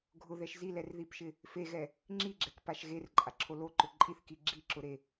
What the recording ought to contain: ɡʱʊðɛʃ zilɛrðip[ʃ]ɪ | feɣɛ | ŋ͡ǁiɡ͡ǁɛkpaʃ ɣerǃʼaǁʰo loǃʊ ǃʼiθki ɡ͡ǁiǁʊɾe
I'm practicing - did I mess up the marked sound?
no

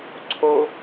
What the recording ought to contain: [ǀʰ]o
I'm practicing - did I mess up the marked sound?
no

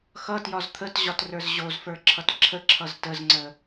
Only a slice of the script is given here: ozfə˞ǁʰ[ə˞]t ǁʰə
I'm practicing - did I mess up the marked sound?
yes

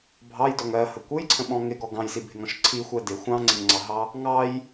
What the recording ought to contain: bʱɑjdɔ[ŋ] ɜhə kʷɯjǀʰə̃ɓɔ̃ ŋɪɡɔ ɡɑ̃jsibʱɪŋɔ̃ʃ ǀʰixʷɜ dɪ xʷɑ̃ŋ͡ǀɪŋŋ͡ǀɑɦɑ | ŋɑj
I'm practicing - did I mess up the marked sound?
no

